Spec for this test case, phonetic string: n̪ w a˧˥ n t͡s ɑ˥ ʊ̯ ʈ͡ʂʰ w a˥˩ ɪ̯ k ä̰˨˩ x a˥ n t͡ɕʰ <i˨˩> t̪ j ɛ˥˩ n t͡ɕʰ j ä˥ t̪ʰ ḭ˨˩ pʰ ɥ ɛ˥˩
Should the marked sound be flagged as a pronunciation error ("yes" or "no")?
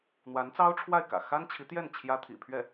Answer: yes